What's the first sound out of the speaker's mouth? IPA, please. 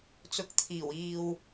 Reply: t͡s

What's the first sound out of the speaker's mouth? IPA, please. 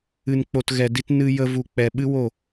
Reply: ɨ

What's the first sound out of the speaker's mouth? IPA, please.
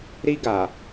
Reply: ɾ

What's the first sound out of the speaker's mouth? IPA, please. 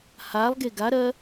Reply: h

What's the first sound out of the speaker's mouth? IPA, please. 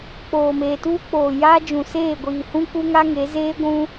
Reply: k͡p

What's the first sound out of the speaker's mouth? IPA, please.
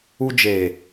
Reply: u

